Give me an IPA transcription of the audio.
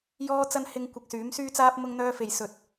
j ɔː˥ t͡s ɐ˥ n h ɪ˥ ŋ kʷ ɐ˧ k̚ s yː˨˥ m s yː˥ t͡s aː˥ p̚ m ʊ˥ ŋ n̪ œː˥ f e˧ j s ɵ˧ t̚

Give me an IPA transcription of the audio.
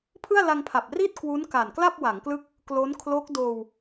pʰ ɯ˥˩ a̯ l a˧ ŋ pʰ a˨˩ p̚ r i˥˩ t̚ k w u˦˥ n k a˨˩ n k l a˥˩ p̚ w a˩˦ ŋ k l ɯ˦˥ k̚ | k l o˦˥ n kʰ l o˦˥ k̚ d oː˧ w

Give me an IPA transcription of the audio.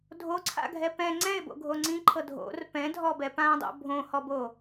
dʱ o ǀʰ a̰ ɡʱ ɛ p ɛ̃ ŋ͡ǀ ɛ̃ ɪ̯ b o̰ ɡʱ o ŋ͡ǀ ĩ ǃʰ ɤ dʱ o̰ r p ɛ̃ dʱ ɔ b ɛ p ã dˤ o̰ bʱ õ h ɔ b o

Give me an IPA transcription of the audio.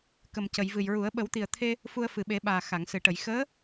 k ə˨˩ m c ə˨˩˨ j v ɨ˨˩ j ɹ u˨˩˦ ə̯ ɓ ə˨˩˦ w t̪ i˨˩ ə̯ t̪ʰ e˧ | f u˧ ə̯ f ɨ˨˩˨ ɓ e˨˩˦ ɓ aː˨˩ x a˨˩˨ ŋ s ɨ˨˩˨ ʈ ə˨˩˨ j x əː˧˥

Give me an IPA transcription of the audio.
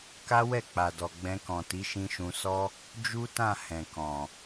k a˦ w ɛ˦˨ k͡p a˨ d ɔ˨ ɡ͡b ɛ̃˧ k ɔ̃˨ t i˨˦ ʃ ĩ˧ ʃ ũ˧ s ɔ˦ | d͡ʒ u˦ t ã˦˨ h ɛ̃˨ k ɔ̃˨

